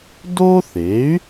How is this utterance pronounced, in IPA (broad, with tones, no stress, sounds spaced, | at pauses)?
d o˥ θ e˩˥ y̯